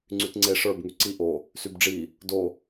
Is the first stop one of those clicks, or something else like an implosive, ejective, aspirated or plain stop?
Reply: click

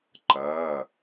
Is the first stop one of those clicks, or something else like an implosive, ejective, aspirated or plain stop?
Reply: click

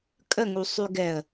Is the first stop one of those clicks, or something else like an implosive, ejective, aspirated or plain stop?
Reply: ejective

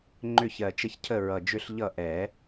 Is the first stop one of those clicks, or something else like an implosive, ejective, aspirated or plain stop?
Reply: click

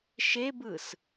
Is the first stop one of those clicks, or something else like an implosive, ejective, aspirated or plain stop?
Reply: plain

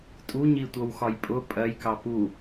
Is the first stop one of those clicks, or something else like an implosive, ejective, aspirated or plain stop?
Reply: ejective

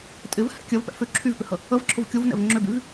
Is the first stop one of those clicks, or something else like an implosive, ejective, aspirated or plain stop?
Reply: ejective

